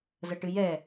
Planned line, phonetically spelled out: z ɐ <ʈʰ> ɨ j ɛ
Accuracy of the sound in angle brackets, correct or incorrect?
incorrect